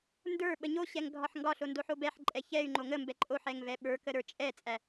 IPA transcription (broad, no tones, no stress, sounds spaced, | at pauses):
n d ə˞ ɓ ə ɲ o ɕ ɛ ŋ ɡʱ ɒ ħ ŋ ɡ ɒ ɬ o n d o ħ o b ɛ ħ ǃʼ ɛ ç ɛ y̯ ŋ͡ǃ o ŋ ə m b ɛ ǃʼ o ħ ɛ ŋ v ɛ ɓ ə˞ k ə ɾ ə˞ t͡ʃʼ ɛ t͡sʼ æ